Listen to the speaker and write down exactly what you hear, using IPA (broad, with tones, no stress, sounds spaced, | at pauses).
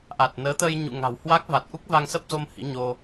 ʔ a˨˩ t̚ n əː˨˦ t̪ əː˧ j ɲ ṵ˧˨ ŋ a̤˨˩ w h w a˦˥ k̚ v a˨˩ t̚ ʔ u˦˥ k̚ v a˧ ŋ s ə˦˥ p̚ z o˧ m h ḭ˧˥ ɲ o˧